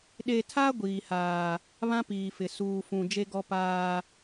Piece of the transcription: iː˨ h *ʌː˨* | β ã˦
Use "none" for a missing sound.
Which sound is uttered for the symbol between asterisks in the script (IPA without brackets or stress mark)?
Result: aː˨